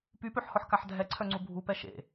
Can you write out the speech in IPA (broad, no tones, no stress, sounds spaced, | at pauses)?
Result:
p y p ø ħ h ɔ ħ k a ħ dʱ ɛ ǀʰ œ ŋ͡ǀ u bʱ u p ɛ ʃ ḛ